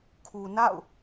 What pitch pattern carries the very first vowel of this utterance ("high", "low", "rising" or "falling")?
low